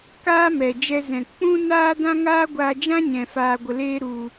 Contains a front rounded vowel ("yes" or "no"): no